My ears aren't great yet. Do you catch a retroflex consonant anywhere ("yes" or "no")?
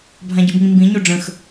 yes